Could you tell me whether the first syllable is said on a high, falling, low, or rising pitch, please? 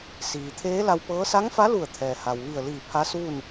low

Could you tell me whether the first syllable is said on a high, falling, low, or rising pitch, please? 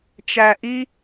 low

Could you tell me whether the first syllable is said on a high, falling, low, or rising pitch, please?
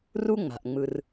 high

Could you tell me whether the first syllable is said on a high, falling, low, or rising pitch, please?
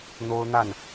high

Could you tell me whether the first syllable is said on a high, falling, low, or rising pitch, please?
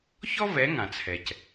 high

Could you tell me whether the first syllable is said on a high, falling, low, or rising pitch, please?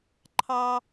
high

